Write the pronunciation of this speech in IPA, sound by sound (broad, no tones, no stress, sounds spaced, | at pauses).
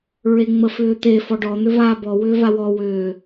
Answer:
ɹ e ŋ͡m ə f ʏː t̪ e f ɔ ɖ ɔ n̪ ʏ v aː b ɔ w ʏː v a w ɔ w ʏː